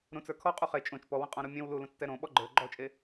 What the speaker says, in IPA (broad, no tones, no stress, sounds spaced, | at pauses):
ɾ ũ t͡s ə˞ kʰ ɔ qʼ u χ e t͡ʃʼ õ t͡ʃ p ɔ w ə̃ qʼ ɔ̃ ɾ u mʲ ẽ w l u l ũ t͡s t ɛ ɾ õ ɓ ɔ ɡ͡ǃ ə˞ ɡ͡ǃ ɔ t͡ʃʼ e